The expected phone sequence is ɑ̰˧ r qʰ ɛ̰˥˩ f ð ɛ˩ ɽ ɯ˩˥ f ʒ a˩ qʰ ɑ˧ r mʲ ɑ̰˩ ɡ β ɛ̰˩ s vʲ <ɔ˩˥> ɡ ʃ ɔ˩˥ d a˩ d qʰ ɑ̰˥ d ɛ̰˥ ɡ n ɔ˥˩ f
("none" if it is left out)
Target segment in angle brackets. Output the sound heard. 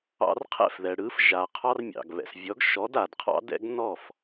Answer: ɔ˩˥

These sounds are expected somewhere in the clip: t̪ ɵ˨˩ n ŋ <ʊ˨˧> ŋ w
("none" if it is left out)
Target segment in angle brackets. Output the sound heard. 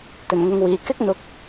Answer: ʊ˨˧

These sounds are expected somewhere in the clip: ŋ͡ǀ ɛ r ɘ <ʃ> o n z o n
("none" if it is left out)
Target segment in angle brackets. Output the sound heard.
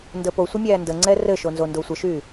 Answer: ʃ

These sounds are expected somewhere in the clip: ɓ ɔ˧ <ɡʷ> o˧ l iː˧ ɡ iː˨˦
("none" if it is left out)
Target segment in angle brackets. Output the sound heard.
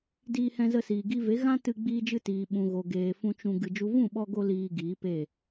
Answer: ɡ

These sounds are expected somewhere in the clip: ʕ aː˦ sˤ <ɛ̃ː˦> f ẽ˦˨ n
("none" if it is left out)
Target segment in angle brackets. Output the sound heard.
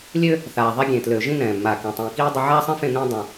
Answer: ɛ̃˦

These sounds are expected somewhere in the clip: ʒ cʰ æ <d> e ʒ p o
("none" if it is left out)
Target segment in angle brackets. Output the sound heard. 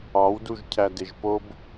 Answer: d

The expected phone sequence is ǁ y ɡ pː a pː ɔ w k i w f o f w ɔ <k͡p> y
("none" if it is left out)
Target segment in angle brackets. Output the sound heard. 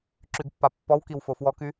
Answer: k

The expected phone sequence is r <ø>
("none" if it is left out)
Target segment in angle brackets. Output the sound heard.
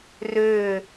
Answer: ø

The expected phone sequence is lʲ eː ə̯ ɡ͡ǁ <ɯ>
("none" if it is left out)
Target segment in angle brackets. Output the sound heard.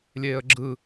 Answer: ɯ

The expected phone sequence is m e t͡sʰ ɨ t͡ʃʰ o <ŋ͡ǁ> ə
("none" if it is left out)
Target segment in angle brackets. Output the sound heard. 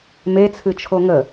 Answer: ŋ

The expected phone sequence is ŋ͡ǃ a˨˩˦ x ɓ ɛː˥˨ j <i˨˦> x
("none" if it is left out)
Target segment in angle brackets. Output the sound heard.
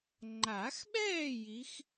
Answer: i˨˦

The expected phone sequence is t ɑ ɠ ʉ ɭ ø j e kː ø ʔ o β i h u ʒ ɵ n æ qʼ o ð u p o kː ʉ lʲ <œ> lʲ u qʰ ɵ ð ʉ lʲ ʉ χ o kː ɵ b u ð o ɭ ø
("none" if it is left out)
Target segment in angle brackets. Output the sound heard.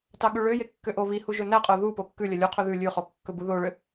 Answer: œ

